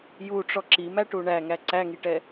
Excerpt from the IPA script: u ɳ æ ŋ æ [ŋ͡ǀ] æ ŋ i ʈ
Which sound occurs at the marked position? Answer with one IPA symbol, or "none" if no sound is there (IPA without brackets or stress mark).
ǀ